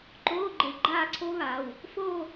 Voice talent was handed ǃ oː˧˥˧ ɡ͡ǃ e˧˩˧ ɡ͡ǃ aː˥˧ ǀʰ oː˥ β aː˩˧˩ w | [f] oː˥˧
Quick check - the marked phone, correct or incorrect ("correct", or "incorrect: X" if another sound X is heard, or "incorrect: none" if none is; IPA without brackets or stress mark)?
correct